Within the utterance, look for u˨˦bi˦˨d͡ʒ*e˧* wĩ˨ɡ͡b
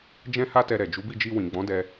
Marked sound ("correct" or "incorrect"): incorrect